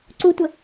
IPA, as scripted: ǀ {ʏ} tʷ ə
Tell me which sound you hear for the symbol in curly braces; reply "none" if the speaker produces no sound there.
u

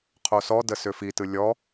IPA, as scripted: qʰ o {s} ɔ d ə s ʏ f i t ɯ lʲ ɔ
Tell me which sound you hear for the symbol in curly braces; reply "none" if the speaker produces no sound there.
s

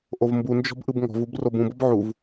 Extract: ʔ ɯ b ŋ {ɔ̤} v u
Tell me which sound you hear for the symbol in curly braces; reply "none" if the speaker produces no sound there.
ɔ̤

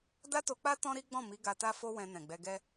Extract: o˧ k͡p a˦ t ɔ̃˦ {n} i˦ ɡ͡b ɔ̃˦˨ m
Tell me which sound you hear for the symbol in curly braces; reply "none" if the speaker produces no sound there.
ɾ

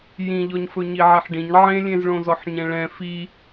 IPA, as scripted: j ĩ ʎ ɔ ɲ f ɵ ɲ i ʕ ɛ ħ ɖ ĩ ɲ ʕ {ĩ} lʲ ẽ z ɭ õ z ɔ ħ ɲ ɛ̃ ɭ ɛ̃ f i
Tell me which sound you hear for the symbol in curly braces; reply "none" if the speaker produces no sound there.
ẽ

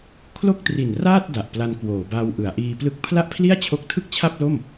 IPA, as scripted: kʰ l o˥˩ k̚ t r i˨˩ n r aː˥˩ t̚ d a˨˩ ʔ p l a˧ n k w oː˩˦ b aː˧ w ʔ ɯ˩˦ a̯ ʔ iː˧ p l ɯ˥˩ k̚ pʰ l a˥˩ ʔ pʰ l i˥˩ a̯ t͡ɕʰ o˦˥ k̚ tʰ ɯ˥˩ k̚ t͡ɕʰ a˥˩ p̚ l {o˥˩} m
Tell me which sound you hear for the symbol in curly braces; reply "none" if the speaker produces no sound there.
o˥˩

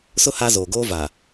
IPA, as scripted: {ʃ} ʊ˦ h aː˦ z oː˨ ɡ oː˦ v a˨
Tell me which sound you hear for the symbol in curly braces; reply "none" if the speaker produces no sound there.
s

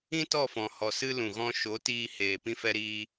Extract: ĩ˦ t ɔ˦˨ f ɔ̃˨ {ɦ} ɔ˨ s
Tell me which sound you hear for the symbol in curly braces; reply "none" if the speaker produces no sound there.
h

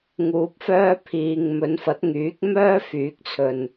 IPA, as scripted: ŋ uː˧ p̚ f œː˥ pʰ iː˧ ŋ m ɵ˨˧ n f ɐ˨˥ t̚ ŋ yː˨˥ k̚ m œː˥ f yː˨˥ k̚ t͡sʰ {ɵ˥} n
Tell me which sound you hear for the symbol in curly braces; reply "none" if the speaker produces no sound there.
ɵ˨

